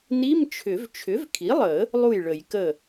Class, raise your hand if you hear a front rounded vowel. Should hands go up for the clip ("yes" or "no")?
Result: yes